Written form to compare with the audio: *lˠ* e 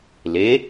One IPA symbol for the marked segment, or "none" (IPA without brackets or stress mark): l